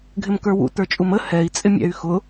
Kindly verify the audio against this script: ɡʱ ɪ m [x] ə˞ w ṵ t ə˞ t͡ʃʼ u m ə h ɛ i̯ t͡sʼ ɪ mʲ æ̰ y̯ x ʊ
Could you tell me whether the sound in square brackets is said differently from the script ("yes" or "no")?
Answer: yes